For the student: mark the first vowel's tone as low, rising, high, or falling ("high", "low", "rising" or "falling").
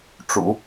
low